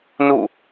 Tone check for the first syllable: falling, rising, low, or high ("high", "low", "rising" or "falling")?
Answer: falling